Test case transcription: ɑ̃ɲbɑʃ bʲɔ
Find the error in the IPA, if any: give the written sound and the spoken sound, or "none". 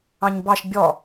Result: none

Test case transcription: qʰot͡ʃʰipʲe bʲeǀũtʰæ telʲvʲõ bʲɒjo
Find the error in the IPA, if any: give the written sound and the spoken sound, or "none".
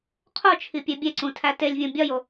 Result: none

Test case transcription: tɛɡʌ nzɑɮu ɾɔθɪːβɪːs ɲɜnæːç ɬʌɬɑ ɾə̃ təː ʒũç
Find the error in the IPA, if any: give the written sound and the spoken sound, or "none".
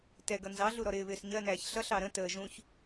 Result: θ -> ɾ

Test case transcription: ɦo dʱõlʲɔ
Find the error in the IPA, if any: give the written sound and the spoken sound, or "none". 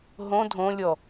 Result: o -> õ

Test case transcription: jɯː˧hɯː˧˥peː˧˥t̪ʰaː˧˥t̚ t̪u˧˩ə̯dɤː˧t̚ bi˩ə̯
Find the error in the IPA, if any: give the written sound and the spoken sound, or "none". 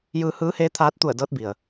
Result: p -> h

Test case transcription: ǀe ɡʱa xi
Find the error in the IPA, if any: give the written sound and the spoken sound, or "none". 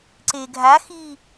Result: none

